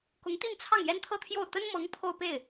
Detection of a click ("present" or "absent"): absent